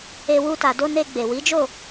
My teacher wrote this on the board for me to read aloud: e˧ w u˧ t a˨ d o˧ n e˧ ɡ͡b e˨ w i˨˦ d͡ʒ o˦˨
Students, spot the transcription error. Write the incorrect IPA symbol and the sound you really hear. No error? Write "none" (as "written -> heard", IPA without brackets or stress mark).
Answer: none